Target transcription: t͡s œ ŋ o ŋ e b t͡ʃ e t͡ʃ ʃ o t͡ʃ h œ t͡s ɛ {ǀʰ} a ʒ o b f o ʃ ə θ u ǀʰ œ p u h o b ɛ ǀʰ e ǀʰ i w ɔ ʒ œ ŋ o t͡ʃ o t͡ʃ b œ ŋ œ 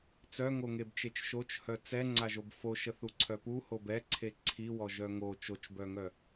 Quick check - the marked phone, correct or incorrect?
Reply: incorrect